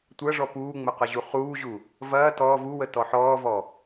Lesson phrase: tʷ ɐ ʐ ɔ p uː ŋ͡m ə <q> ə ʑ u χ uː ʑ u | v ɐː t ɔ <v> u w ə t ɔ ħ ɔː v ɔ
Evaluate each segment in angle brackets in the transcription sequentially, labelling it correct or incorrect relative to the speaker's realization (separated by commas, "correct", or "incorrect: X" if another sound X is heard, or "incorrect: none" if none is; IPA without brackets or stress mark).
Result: correct, correct